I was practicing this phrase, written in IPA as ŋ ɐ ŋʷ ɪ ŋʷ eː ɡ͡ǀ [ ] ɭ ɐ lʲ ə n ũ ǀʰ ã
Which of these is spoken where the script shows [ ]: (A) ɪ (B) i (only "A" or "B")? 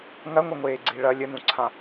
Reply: B